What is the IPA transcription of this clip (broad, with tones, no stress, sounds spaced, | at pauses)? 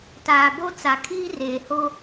t aː˨ b o˦ t͡s a˨ kʰ iː˦ r eː˨ h o˦